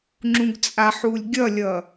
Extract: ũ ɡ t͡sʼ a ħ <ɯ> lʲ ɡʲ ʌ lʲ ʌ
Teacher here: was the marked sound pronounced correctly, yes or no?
no